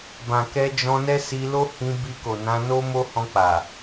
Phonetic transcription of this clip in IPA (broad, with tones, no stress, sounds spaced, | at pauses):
b ã˨ k ɛ˧ d͡ʒ ɔ̃˧ n ɛ˦ s i˧ l o˦ h ĩ˧ b i˧ k o˨ n ã˧ n o˦ m o˦ h ɔ̃˧ k͡p a˨